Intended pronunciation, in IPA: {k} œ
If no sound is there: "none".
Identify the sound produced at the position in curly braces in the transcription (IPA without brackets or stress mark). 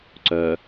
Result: ǀ